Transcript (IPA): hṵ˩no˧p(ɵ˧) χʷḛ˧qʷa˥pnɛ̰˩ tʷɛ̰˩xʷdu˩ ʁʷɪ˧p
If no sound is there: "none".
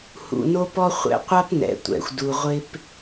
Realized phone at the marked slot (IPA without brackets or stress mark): ɔ˧